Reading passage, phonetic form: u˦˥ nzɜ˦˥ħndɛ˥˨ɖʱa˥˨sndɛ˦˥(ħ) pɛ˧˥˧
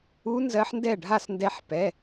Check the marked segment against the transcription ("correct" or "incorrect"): correct